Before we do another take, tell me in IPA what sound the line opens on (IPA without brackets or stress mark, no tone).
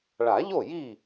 ɭ